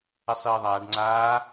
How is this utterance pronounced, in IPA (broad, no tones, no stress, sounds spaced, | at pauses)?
ɛ sˤ iː ðˤ aː ɖ ŋ͡ǀ aː